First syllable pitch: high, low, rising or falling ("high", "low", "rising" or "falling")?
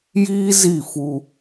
high